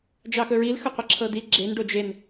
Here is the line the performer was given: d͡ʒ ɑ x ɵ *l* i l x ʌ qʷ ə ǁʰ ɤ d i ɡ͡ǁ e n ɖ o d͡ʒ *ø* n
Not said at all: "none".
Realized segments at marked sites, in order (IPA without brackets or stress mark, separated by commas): ɹ, e